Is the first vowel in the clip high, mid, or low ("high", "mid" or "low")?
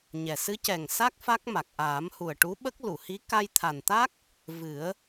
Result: mid